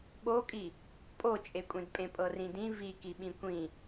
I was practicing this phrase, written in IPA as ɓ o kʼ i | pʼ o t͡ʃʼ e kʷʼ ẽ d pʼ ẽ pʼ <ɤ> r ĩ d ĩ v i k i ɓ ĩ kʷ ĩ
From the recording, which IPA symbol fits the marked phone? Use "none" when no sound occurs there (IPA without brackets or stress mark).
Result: ɤ